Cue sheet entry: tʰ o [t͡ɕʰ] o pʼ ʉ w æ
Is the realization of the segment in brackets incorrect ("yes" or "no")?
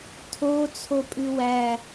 yes